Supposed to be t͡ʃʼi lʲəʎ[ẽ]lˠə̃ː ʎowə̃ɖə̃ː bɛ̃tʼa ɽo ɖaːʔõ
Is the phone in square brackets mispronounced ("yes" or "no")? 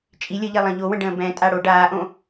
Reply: yes